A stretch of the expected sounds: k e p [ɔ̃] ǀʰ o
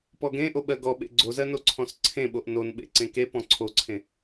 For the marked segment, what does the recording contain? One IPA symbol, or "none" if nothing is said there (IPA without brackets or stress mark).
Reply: ɔ̃